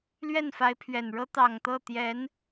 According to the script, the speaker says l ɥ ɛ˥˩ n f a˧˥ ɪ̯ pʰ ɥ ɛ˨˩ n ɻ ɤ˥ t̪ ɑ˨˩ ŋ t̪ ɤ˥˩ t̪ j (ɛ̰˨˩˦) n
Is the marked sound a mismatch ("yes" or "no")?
yes